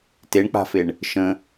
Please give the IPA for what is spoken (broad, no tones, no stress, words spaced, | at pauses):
teɳk͡pa̤feɳ | ʃə̃